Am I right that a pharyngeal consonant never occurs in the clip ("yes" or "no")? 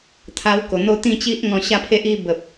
yes